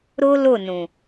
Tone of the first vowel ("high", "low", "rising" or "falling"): high